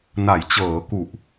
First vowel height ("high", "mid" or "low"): low